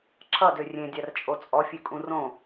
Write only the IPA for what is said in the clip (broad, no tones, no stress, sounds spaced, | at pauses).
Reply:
ǁ ʌ d ø rʲ ẽ dʲ a r t͡ʃʼ o t͡sʼ ɔ fʲ ø kʼ ũ r õ